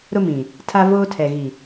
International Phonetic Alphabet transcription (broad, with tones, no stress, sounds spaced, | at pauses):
ɾ ʊ˦ m ĩ˨ | tʰ a˦ v oː˦ tʰ ɛ˨ ɣ i˨